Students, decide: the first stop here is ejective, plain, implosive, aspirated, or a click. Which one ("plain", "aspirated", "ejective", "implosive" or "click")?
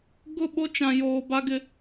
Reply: plain